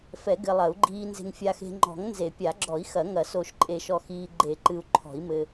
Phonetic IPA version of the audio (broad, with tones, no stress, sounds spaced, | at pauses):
f ɛ˨˩˦ ɡ ɘ˨ lˠ ɐ˨˩˦ u̯ ɡ͡ǃ iː˨ n z e̤˨ ŋ fʲ a˨ x e̤˨ ŋ͡ǃ ɔ̤˨˩˦ ŋ n z e˨˩˦ pʲ a˨˩˦ ɡ͡ǁ ɔ˨˩˦ i̯ x ɐ˨˩˦ ŋ ɐ˨˩˦ s o˨˩˦ ʃ ǃʼ e˨˩˦ ʃ ɔ˨ x iː˨ ɡ͡ǃ e˨˩˦ ǃ ɨ˨ u̯ ǃʰ ɔ̤˨˩˦ i̯ m ɘ˨